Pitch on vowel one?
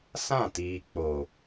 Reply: falling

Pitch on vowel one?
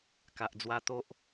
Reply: low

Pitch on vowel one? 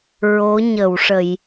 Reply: rising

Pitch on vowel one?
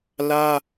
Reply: high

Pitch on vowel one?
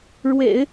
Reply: low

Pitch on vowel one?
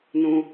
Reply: low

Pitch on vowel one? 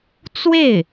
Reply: falling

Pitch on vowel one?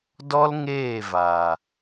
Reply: high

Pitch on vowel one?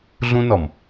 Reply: high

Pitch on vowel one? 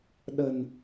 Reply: low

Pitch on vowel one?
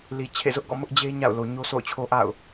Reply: low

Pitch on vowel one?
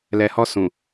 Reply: low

